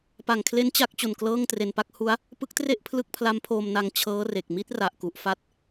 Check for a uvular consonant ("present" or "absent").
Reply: absent